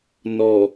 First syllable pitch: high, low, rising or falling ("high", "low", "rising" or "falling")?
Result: low